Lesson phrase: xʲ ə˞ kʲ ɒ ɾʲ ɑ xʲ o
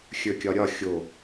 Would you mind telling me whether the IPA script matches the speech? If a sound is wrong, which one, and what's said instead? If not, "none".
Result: ɑ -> ɒ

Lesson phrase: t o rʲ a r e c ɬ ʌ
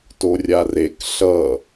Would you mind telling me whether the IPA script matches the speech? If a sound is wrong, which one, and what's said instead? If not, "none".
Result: c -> k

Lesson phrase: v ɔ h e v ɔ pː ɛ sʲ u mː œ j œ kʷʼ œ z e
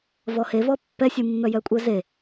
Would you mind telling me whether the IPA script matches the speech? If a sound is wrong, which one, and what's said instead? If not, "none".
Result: none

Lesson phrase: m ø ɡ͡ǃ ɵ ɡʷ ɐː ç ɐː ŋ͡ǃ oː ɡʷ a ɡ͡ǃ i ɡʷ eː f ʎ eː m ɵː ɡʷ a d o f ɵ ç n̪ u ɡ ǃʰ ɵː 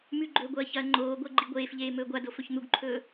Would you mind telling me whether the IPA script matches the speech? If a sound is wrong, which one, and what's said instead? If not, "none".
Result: ø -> ʉ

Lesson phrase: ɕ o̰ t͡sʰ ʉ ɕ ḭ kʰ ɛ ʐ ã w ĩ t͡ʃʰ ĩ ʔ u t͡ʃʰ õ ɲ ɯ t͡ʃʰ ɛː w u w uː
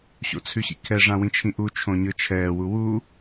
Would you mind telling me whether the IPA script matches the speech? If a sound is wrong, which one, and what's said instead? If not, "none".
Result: none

